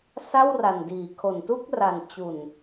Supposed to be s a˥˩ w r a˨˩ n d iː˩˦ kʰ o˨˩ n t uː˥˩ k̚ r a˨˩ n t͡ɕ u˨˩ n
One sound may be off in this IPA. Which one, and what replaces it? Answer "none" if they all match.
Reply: uː˥˩ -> u˥˩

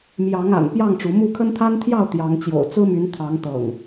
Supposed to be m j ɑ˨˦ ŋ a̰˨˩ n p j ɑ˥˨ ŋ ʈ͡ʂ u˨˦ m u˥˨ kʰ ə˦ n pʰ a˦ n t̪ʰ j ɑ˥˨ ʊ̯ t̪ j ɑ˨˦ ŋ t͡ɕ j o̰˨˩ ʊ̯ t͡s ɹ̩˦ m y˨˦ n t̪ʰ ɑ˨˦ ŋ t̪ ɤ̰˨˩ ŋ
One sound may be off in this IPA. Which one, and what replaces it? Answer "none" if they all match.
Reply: pʰ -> t̪ʰ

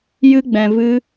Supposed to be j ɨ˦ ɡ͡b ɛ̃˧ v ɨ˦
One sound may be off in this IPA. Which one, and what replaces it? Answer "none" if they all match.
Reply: none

